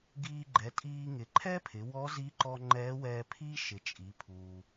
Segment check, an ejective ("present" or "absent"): present